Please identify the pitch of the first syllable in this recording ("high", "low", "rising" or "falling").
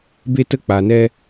high